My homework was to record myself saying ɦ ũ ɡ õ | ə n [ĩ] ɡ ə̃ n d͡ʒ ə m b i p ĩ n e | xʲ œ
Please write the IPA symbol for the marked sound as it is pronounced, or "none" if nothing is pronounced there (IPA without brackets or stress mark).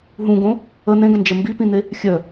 ẽ